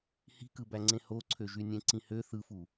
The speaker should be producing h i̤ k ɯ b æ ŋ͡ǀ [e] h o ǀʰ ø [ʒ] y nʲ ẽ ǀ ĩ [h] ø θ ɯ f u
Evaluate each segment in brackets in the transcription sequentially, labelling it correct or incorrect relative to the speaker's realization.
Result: incorrect: ẽ, correct, correct

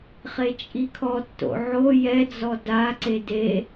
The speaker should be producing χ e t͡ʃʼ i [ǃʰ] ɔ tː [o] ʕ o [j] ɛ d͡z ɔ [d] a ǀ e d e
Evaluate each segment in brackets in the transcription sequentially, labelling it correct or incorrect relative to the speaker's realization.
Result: incorrect: kʰ, incorrect: o̰, correct, correct

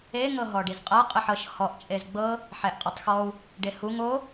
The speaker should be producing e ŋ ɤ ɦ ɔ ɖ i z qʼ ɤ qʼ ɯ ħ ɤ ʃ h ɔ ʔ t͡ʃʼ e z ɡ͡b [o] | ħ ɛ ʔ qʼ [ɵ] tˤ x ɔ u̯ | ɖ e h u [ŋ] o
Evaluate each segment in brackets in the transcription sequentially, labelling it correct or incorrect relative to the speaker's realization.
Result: incorrect: ɤ, incorrect: ɤ, correct

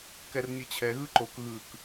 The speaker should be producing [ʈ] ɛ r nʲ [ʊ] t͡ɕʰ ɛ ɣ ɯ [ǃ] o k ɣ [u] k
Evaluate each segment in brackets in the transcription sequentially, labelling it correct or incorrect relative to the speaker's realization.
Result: incorrect: k, incorrect: ɯ, correct, incorrect: ɯ

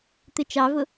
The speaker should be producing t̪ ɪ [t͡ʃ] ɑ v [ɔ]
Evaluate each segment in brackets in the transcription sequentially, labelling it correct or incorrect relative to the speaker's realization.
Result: correct, incorrect: ʊ

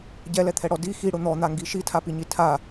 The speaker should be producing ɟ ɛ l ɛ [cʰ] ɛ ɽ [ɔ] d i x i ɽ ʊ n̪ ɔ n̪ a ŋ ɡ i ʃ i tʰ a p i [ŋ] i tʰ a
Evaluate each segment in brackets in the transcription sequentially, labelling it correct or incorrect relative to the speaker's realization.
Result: incorrect: t̪ʰ, correct, incorrect: ɲ

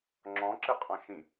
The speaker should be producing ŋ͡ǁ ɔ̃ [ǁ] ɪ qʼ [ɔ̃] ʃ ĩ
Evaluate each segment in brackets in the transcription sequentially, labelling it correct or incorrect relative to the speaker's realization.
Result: correct, correct

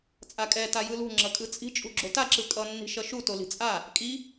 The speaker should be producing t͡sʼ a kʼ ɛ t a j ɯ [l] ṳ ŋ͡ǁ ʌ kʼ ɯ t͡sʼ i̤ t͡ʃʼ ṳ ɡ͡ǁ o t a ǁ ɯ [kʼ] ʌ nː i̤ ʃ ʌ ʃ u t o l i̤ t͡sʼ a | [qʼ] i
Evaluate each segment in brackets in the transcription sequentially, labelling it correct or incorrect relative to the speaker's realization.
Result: correct, correct, incorrect: kʼ

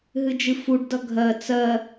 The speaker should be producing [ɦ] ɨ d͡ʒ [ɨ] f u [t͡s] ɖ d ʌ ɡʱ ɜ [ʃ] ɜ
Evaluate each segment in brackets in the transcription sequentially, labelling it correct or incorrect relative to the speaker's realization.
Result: correct, correct, incorrect: none, incorrect: t͡s

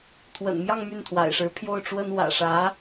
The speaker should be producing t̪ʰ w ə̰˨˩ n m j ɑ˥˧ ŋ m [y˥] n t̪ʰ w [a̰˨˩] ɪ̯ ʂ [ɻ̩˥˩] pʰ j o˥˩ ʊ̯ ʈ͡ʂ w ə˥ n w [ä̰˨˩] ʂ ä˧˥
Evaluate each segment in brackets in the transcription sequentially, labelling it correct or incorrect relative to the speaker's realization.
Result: incorrect: y˥˩, correct, incorrect: ɻ̩˧˥, correct

